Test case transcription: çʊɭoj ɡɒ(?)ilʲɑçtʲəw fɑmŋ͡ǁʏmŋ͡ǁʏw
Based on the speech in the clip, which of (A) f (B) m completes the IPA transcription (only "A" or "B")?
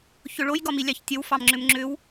B